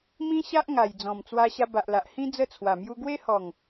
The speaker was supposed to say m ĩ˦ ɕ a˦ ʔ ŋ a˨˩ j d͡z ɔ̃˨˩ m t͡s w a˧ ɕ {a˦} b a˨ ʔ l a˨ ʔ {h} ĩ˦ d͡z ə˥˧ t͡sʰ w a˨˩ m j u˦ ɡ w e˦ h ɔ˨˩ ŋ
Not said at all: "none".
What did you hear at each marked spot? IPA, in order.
a˧, h

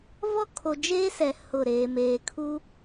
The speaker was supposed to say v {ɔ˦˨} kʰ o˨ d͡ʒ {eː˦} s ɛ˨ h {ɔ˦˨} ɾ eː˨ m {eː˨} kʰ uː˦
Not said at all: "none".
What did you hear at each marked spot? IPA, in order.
ɔ˦, eː˦, ʊ˦˨, eː˨

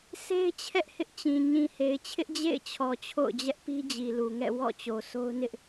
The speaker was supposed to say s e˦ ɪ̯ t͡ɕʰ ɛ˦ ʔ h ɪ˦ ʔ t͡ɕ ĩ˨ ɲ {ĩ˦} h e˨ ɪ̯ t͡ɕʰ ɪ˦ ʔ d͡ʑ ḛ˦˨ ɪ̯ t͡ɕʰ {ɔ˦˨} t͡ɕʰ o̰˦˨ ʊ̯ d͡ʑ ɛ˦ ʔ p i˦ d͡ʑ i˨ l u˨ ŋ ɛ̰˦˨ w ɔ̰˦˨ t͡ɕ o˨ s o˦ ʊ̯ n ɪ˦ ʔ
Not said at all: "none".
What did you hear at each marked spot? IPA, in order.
ĩ˨, ɔ˨

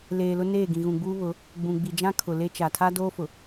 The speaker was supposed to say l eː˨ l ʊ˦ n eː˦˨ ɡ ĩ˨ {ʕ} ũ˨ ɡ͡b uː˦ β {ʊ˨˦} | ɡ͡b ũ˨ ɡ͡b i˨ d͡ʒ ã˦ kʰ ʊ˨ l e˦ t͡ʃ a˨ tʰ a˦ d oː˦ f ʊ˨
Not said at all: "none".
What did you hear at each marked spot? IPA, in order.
ɣ, ʊ˨˦

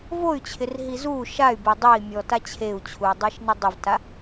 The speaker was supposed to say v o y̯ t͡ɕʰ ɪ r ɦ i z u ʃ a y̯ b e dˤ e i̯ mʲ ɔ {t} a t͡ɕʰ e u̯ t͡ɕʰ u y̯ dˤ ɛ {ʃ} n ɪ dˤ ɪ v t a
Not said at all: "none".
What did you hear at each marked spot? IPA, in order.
t, ʃ

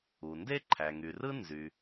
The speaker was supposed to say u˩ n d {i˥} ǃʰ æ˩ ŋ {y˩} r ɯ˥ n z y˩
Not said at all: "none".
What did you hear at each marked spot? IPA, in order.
e˥, y˩

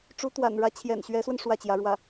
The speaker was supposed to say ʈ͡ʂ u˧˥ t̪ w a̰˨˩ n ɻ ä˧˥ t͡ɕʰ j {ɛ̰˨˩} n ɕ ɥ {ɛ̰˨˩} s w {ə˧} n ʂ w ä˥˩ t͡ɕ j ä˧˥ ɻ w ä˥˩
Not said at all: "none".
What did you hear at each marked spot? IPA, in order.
ɛ̰˨˩, ɛ˧˥, ə˧

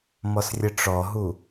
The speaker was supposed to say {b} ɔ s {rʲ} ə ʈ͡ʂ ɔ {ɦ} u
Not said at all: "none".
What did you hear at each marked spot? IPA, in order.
m, rʲ, ɦ

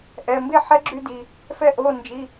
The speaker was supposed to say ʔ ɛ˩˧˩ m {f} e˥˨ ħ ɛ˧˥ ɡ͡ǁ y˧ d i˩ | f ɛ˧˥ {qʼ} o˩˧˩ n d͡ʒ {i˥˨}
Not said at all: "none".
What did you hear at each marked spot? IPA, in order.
b, ʔ, i˩˧˩

